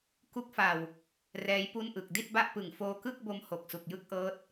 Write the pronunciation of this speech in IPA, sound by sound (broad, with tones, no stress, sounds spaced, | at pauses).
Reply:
k u˦˥ k̚ f a˨˩ w | r ɛː˦˥ j p u˥˩ n ʔ ɯ˨˩ k̚ d i˥˩ t̚ b a˥˩ ʔ p ɯ˨˩ ŋ f oː˧ k ɯ˥˩ k̚ b o˧ m h o˨˩ k̚ s u˨˩ k̚ j ɯ˥˩ k̚ ʔ ɤː˦˥ t̚